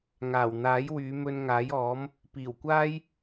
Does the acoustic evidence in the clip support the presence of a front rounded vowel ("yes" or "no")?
yes